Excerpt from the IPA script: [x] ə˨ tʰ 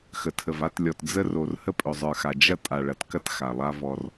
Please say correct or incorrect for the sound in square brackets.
correct